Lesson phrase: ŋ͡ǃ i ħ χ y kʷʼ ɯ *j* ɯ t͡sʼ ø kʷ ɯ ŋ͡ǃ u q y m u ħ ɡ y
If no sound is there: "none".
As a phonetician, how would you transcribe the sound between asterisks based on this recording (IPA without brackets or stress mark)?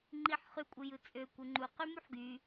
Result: j